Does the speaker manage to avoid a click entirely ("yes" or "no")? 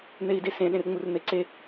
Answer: no